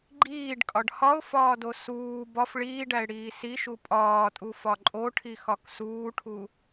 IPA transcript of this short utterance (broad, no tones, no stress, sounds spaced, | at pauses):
ɡ͡ǃ iː ɖ kʼ ɒ ɖ h ɒ ʊ̯ f ɒː d o s uː b ɒ f ɭ iː ɖ æ ɪ̯ ɽ iː s i ʃ u pʼ ɒː tʼ u f ɒ ǃʼ o ʈʰ i x ɒ k s uː ʈʰ u